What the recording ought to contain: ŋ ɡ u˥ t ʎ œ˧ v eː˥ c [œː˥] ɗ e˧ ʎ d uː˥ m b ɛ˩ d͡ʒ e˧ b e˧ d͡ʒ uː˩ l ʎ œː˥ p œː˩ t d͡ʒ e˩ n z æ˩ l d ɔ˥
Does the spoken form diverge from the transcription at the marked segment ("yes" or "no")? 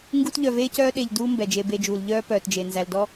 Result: no